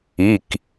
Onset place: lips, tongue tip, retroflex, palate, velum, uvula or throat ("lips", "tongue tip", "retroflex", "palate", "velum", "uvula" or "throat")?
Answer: velum